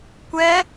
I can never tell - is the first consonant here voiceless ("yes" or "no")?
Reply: yes